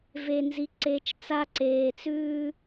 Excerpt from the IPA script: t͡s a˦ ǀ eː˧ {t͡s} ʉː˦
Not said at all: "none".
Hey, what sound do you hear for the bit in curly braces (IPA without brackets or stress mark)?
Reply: t͡s